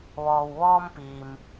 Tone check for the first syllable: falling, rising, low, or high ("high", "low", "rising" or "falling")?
low